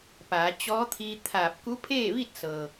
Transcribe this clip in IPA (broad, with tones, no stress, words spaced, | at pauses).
paː˩˧t͡ɕɔː˧˥t̪ʰiː˧t̪ʰaː˧˩p̚ ku˧˥pʰeː˥˨ʋi˥˨t̚sɤː˩